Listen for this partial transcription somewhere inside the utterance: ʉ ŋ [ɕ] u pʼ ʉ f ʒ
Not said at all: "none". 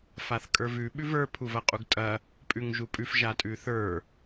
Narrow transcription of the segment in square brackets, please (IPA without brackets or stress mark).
ʒ